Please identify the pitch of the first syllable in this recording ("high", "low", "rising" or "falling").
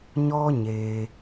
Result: high